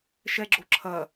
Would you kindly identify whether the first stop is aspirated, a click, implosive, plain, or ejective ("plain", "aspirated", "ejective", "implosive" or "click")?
click